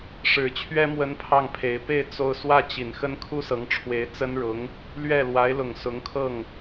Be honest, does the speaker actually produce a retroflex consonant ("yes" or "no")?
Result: yes